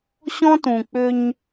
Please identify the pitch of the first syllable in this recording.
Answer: high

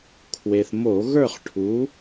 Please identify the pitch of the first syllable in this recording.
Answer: low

